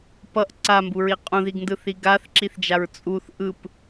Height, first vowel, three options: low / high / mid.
mid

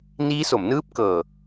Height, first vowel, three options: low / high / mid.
high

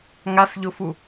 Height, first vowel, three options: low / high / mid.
low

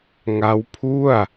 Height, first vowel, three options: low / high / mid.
low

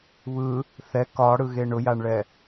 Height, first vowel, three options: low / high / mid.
high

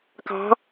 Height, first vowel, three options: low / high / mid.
low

